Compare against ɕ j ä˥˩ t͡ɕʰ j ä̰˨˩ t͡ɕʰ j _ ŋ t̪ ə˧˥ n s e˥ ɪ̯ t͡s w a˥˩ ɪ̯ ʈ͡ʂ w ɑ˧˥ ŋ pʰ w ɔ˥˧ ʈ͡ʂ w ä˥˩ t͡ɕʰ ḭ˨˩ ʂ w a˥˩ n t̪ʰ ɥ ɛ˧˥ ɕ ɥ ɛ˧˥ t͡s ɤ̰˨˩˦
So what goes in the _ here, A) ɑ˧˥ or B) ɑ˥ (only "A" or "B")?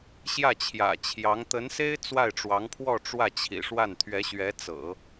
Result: A